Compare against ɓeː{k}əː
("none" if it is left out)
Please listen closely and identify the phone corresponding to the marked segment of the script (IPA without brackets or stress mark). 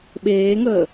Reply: ŋ